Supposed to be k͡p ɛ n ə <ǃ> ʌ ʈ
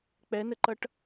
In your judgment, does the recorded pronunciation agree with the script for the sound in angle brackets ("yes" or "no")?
yes